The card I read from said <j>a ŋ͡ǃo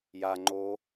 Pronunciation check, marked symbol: correct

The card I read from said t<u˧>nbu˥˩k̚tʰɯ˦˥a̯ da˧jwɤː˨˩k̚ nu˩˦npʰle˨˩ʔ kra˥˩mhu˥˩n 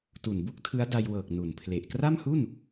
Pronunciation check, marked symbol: incorrect: u˨˩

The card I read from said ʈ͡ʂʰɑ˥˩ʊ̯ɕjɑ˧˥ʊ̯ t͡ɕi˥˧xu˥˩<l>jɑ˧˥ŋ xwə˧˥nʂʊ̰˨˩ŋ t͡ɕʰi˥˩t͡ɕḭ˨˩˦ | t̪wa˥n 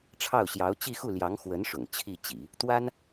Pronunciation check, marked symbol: correct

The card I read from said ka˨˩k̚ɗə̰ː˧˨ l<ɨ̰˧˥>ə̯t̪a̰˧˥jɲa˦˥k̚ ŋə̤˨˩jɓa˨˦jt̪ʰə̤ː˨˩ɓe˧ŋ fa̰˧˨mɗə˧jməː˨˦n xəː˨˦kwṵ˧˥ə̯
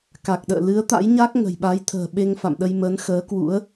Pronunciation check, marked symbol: incorrect: ɨ˨˦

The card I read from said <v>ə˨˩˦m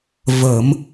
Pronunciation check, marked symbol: correct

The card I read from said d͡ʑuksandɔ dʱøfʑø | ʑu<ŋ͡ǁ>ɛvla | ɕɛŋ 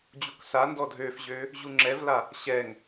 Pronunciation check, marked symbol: correct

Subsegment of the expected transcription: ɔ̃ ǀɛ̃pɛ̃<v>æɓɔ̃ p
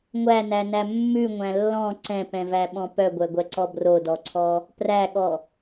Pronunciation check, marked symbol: correct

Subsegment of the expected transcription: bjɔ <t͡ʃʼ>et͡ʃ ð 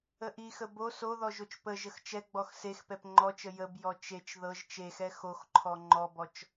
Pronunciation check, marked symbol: incorrect: t͡ʃ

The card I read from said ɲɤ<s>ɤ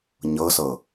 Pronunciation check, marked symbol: correct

